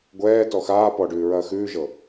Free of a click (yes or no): yes